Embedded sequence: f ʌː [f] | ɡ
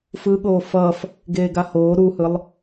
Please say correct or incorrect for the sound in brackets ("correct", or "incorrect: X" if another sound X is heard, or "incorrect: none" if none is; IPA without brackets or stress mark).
correct